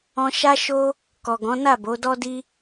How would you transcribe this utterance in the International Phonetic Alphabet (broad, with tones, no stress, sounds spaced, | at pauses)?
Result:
ɔ̃˧ ʃ a˦ ʃ o˦ | k ɔ˨ ɡ ɔ̃˨˦ n a˦˨ b o˨˦ d ɔ˦ d i˦